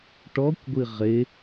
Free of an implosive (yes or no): yes